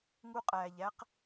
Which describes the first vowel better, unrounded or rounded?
rounded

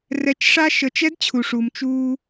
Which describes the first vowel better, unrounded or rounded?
unrounded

